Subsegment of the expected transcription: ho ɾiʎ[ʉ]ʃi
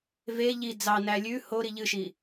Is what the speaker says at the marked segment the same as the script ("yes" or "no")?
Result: no